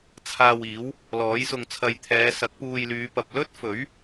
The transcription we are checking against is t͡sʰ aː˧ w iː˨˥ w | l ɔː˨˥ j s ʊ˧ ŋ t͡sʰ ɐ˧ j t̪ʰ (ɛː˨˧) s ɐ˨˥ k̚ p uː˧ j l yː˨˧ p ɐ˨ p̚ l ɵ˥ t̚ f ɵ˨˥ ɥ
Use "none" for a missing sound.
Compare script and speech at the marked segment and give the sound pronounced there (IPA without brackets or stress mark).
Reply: ɛː˨˧